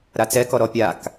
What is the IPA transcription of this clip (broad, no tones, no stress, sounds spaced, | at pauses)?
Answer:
ɾ a t͡s ɛ k ɔ ɾ ɔ pʲ a k